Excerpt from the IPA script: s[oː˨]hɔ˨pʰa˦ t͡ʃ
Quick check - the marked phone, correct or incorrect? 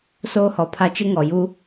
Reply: incorrect